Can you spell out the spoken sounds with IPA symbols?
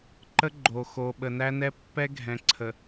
ǃ ə˦ ɡ͡ǃ o˨ x o˨ ɓ ə˨ n æ˦ n ɛ˦ pː ɛ˦ ɡʱ ɛ̃˨ ǀʰ ə˨

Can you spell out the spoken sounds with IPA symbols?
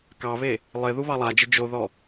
k ɑ β e | lˠ ɪ ð u β ɑ lˠ a d͡ʒ ɪ d͡ʒ o ð ɔ

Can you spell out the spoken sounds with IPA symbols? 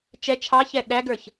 t͡ʃ ɛ t͡ʃʰ ɑ ç ɛ ɗ æ ɡ ə˞ ç

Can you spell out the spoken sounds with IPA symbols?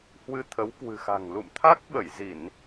h w ɨ˧ t̪ʰ ə˨˦ w k w ɨ̤˨˩ x a̤˨˩ ŋ l ṵ˧˨ m t̪ʰ a˦˥ k̚ ɓ ə˧˩ j z i˧˩˨ n

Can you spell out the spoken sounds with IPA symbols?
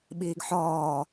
ɓ iː ɡ ħ ɔː

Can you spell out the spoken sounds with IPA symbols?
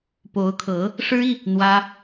p o˧˥ ʊ̯ kʰ ɤ˧˥ | ʂ ɻ̩˥ i˨ | n̪ w ä˥

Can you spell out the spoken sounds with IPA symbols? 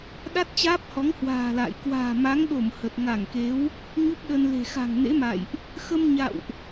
ɗ a˦˥ t̚ t͡ɕ aː˦˥ p̚ h ɔ˨˦ ŋ h w a̤ː˨˩ l a̰ː˧˨ j k w a̤ː˨˩ m a˨˦ ŋ ɗ o˧˩ m h ə˨˩ t̚ ŋ a˧˩ ŋ k e˨˦ w | ɲ u˦˥ p̚ ɗ ə˧ n l e̤˨˩ x a̤˨˩ ŋ n ḛ˧˥ m a̰˧˨ j ʔ | x ə˧ m ɲ a̰˧˨ w ʔ

